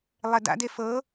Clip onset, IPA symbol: lˠ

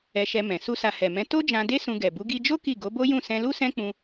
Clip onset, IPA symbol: ɛ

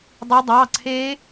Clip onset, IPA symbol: dˤ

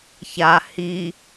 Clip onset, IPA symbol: ç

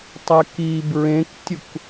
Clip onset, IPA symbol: tˤ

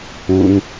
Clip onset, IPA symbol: u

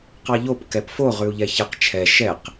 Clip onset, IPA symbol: q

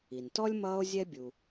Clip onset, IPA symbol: i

